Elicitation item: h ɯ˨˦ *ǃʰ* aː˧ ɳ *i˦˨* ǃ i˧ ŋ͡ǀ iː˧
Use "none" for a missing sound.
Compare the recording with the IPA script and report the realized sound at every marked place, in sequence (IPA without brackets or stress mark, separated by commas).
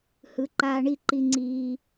ǃ, i˦˨